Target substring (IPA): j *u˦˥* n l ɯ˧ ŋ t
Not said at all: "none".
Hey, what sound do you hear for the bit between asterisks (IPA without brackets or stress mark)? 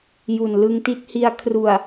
u˨˩